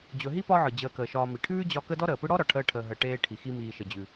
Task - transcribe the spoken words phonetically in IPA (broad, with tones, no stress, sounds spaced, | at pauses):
d͡ʑ ɵ˨ ɦ i˥ p ɒ˦ ʕ ɯ˩ d͡ʑ əː˨ k əː˩ ʃ ɒː˨ m i˩ ʈʰ ʉː˥ d͡ʑ ɒ˦ k ə˥ d ɔ˥ ɾ əː˩ p ɯ˦ ɽ ɔ˥ ɾ ɒ˩ ʈʰ əː˦ ʈʰ əː˨ ɦ əː˨ ʈ eː˦ ʈʰ i˩ x i˦ m iː˨ ʃ ə˩ d͡ʑ ʉ˩